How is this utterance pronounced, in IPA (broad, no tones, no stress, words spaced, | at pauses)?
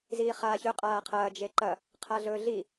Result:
ziːχaːçɵ qʼaːqʰɐː d͡ʒeǃɐ | qʰaɮɵːɮi